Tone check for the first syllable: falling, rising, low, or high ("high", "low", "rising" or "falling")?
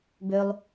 high